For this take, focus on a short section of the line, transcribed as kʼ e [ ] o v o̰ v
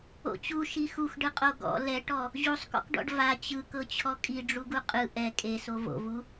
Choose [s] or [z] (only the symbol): s